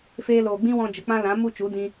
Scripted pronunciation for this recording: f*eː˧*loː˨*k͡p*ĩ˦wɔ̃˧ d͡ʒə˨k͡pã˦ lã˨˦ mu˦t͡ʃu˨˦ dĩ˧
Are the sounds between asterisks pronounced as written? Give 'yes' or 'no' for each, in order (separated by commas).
yes, no